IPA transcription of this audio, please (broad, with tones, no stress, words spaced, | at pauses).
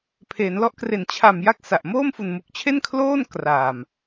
pʰeː˩˦nlɔ˦˥ʔkre˨˩n t͡ɕʰa˨˩m ja˥˩k̚sa˨˩ʔ moː˥˩mfu˨˩nmu˨˩k̚t͡ɕʰe˥˩n kʰloː˥˩n kraː˨˩m